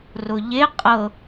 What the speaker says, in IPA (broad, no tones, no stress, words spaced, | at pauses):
rʊʎe qʼɤ